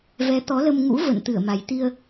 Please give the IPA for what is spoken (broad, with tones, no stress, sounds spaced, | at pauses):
v ɛ˨˦ t̪ ɔ˨˦ l ə˧ m ŋ ṵ˧˥ v ə̰˧˨ n t̪ ɨ˧˩ ə̯ m a˨˩ j t̪ i˧ ə̯